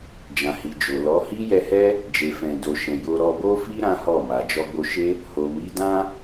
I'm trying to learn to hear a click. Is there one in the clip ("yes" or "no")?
no